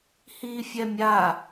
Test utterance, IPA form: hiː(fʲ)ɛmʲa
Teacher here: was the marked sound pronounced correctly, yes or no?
yes